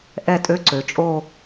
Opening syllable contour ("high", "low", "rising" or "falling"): falling